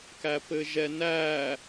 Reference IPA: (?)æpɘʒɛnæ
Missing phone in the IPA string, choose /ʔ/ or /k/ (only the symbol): k